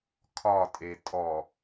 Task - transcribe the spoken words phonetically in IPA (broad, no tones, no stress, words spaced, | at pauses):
kʰɒtʼe tʼɔ